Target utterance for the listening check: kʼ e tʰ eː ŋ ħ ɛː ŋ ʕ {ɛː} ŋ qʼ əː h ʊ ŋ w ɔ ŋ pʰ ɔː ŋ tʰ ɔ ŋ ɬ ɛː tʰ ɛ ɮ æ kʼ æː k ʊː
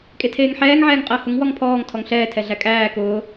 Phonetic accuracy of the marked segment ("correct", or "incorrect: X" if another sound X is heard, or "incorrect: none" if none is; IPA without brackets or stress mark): correct